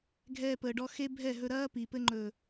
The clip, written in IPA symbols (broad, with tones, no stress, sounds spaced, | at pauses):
ɡʱ ɛː˧ p əː˨ ɖ ɔ˧ x e˦ bʱ ɛ˦˨ ɦ ɵ˧ ɾ ɐː˦ p i˨ p ɘ˧ ŋ͡ǃ ɵ˨